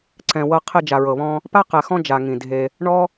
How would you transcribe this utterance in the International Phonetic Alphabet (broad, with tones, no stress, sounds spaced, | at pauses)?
ǀ ɛ̃˨ w ɤ˧ qʰ e˧ d͡ʒ a˨ ɹ ɤ˨ β ɔ̃˧ | p a˦ q ɛ˨ x ɔ̃˦ d͡ʒ a˨ ŋ ĩ˨ dʱ e˧ | ɳ ɔ˦